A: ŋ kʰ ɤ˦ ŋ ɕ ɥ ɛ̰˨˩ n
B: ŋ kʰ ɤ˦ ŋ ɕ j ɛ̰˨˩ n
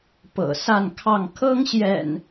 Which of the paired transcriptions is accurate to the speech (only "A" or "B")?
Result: B